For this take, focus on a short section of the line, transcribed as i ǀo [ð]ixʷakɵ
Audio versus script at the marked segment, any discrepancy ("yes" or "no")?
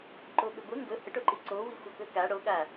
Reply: yes